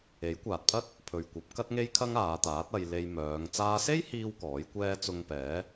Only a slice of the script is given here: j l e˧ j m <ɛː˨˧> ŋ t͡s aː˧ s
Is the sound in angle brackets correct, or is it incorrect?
incorrect